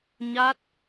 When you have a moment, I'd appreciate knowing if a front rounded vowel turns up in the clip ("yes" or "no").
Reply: no